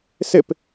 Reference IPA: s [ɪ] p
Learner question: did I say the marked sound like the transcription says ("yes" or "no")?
yes